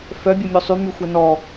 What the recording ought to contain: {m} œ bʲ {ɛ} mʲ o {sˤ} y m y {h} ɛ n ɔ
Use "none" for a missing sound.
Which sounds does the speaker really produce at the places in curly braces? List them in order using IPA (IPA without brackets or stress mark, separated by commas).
f, œ, sˤ, xʷ